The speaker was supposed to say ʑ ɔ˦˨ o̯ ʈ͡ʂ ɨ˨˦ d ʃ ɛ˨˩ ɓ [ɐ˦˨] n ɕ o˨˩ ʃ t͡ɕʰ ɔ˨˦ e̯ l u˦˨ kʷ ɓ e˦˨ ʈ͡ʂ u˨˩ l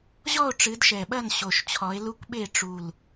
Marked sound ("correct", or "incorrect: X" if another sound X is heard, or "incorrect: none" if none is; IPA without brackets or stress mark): correct